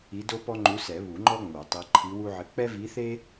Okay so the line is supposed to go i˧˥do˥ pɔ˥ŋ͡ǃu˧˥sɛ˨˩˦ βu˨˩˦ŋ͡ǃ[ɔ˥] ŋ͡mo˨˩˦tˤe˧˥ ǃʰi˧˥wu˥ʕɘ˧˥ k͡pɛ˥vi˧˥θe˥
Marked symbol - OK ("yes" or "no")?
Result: yes